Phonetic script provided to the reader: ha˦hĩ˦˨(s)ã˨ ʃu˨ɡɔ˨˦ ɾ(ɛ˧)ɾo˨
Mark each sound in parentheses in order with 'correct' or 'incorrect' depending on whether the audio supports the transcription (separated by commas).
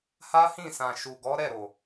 correct, incorrect